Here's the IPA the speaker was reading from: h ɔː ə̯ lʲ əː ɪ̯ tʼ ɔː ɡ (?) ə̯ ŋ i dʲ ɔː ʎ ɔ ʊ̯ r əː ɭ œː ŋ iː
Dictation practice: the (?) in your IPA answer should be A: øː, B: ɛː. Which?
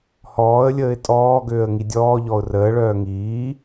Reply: A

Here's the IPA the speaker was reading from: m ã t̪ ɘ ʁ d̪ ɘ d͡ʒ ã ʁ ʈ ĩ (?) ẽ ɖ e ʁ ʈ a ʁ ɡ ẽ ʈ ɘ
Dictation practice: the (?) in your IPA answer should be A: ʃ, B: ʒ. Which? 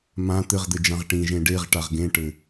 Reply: B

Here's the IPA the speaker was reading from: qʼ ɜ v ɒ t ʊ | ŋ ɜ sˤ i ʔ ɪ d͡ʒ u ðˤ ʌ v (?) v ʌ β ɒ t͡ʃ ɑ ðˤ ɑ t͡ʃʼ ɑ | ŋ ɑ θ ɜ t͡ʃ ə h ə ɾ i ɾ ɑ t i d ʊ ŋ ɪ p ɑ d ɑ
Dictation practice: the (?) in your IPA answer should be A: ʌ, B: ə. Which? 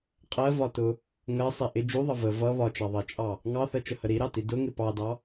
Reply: B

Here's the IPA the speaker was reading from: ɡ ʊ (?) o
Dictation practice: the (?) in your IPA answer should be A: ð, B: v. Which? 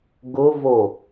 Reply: B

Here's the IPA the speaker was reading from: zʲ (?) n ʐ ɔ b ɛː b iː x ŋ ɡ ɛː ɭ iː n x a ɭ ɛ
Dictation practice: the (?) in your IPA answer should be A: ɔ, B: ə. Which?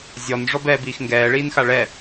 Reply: A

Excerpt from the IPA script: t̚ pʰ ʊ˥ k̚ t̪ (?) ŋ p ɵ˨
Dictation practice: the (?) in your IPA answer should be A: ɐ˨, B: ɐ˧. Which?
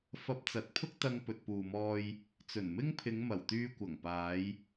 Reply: B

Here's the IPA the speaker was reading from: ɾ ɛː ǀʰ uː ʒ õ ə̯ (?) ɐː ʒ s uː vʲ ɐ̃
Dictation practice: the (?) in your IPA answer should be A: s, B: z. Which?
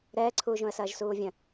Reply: A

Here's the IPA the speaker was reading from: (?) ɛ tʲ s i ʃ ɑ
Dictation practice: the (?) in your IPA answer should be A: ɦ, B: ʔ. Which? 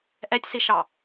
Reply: B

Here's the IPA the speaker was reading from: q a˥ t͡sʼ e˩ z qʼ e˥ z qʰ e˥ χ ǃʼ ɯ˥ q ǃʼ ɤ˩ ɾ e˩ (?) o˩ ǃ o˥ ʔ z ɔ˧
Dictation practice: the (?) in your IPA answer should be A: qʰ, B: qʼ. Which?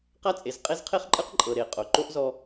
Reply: B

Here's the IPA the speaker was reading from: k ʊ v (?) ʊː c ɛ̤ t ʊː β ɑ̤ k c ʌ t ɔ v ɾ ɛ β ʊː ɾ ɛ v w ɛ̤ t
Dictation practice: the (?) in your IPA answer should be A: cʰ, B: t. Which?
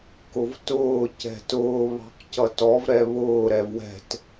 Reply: B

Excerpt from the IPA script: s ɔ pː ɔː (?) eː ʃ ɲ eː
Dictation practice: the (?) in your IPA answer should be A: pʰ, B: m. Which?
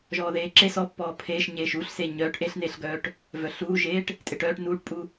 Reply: A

